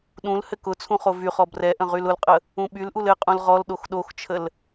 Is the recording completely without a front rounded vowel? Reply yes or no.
no